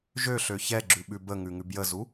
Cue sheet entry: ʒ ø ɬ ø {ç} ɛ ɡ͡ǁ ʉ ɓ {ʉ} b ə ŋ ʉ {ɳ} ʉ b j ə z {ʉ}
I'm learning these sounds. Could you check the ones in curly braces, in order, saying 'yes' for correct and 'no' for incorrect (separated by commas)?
yes, yes, no, no